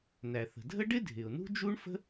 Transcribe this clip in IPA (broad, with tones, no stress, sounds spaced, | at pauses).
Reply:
n æ˩ θ ə̤˩ dʱ ə˥ ɖ ɪ˥ dʱ ɪ˩ ʊ̯ n ṳ˥ d͡ʒ u˥ ɳ f ə̤˥